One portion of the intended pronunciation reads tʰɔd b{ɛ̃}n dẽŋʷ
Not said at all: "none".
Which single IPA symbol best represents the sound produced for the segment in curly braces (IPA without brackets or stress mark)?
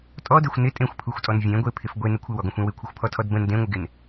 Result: ə̃